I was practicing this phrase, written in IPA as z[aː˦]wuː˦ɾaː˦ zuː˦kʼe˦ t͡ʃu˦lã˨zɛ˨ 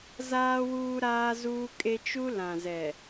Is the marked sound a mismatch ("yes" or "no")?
no